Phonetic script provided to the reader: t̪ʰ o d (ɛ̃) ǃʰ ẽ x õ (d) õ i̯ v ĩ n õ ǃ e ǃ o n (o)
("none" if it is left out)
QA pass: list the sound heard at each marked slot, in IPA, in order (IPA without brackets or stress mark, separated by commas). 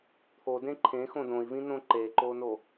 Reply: ẽ, d, o